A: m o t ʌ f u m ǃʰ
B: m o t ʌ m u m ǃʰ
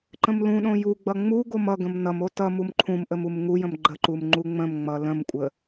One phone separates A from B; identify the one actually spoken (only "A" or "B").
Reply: B